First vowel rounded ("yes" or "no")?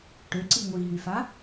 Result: yes